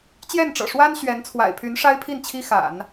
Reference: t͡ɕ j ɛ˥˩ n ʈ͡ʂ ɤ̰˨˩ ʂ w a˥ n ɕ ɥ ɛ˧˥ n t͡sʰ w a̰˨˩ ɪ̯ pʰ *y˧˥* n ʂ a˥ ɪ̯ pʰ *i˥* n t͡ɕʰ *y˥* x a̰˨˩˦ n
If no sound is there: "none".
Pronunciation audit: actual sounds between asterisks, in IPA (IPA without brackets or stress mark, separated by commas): y˧˥, i˥˩, i˥